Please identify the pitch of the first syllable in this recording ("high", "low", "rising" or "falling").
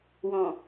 low